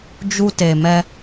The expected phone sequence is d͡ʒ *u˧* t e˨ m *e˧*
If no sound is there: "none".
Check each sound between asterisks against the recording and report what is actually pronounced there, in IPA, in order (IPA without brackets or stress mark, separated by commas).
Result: u˧, ɛ˧